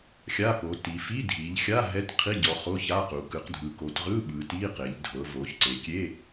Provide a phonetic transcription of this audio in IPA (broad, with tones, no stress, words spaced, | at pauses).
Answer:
xʲa˧˥˧po˩˧ ti˩˧ fi˧˥˧dʱi˩˧ʎxʲa˧˥˧ ɦɛ˧˥˧t qʰi˧˥˧ɟɔ˩˧ χo˧˥˧ça˧˥˧qu˩˧ kɯ˩˧qdʱɯ˩˧ko˩˧tʁɯ˧˥˧ ɓɯ˩˧ti˧˥˧ qe˩˧ʎdʱɤ˩˧vo˩˧ç ǀe˩˧kʲe˧˥˧